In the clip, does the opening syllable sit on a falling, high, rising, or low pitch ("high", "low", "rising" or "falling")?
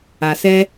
low